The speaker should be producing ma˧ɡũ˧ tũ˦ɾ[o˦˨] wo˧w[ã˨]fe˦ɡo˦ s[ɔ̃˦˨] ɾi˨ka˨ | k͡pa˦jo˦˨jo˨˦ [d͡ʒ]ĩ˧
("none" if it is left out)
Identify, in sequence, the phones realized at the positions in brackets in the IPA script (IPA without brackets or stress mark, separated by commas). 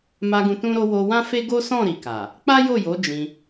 o˦, ã˦, ɔ̃˦˨, d͡ʒ